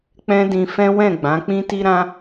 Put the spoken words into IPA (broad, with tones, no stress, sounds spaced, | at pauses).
k͡p ɛ̃˦ d ĩ˧ f ɛ̃˦ w ɛ̃˦˨ ɡ͡b ã˨˦ k͡p ĩ˦ t i˦ ɾ ã˦